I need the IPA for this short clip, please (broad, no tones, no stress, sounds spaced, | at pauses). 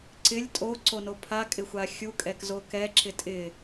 ǀ ɪ lʲ tʼ o ǀ o n o pʰ a kʼ ɪ xʷ a xʲ u kʼ ɛ k z o k ɛ ǁ ɪ tʼ ɪ